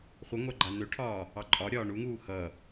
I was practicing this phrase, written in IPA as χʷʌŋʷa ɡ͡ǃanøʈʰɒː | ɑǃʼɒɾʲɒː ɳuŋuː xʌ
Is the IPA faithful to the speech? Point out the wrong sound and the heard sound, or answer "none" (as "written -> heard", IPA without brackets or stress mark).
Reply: none